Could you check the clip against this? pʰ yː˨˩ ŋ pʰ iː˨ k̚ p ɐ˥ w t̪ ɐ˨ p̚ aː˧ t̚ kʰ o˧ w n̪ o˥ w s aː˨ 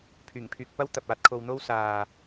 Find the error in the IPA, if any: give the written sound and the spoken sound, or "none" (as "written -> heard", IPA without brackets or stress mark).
iː˨ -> yː˨